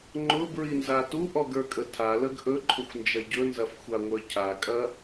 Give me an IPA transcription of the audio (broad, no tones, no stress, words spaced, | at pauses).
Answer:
ŋ͡ǃʊbɹinza tuʔɔɡə˞kʼə tʰaləɡ ʔɵǃʰʊxʷnd͡ʒɐ ɟɵnzɐfxʷaŋʷə˞ cʰakʼɐ